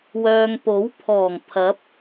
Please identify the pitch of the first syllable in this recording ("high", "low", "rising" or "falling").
low